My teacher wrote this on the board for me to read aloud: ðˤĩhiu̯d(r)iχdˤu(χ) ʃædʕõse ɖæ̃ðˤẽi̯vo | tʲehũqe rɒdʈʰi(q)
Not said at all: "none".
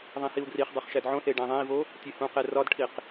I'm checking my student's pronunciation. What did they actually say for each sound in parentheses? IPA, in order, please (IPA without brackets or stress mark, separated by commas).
r, χ, q